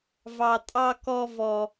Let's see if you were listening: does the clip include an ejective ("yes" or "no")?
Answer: yes